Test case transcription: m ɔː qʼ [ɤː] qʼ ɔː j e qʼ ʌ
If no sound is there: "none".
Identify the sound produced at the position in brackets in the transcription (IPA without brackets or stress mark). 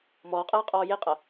ɤː